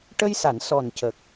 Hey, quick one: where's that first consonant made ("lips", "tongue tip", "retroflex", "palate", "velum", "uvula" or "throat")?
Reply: retroflex